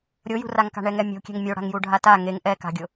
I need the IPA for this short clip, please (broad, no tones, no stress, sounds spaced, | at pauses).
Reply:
ɾʲ o j ṳ r a ŋ k a̤ ɳ ɛ ŋ ɛ mʲ o̤ kʲ ɛ̤ ŋ mʲ o ɽ a̤ ŋ j u ɖʱ a t a ŋ e ŋ ʔ ɛ k a̤ ɡʲ ʊ